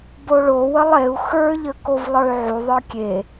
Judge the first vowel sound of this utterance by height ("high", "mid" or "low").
mid